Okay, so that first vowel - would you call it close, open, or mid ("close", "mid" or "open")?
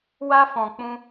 open